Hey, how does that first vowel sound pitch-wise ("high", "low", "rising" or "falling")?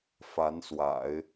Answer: rising